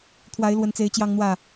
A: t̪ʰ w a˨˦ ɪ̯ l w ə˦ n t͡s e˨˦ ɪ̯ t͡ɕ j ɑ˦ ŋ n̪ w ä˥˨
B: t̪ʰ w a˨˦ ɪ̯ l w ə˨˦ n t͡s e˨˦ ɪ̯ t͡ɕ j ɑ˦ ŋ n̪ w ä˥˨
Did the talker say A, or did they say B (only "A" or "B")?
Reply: B